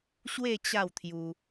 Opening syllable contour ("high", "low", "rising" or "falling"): falling